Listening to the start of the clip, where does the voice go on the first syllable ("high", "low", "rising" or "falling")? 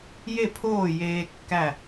falling